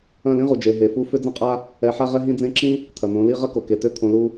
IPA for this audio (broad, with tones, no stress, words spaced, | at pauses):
ɐ̃˦˨lĩ˦ʁu˨d͡ʒe˨ ɦe˨fu˧ fʏ˦d͡zɐ̃˦qʼa˦ | ɛ˨ħa˧ʁɛ˧ ɦĩ˧d͡zẽ˧ǁĩ˦ | t̪ʰɐ˨n̪õ˨˦li˦ ʁɐ˦ko˨ ke˨tø˧ t̪ʰõ˧lu˦